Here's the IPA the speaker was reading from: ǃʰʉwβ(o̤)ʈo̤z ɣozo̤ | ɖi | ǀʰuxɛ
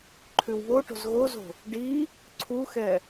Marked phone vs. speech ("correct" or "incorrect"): incorrect